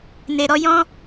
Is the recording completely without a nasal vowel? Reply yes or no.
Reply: no